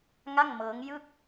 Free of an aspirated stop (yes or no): yes